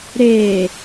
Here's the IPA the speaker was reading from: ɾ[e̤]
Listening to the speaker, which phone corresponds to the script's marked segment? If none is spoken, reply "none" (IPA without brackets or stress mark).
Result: e